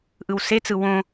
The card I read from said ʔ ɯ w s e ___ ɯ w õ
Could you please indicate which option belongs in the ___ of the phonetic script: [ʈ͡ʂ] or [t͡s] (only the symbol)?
t͡s